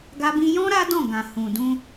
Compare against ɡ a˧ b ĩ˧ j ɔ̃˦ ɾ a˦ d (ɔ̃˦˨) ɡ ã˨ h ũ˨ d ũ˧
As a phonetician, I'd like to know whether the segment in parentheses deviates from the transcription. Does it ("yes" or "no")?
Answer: no